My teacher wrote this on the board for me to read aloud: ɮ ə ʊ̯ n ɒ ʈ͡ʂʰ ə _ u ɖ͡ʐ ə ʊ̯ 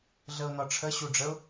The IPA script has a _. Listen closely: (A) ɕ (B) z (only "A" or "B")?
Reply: A